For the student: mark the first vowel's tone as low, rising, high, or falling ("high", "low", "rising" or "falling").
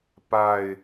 low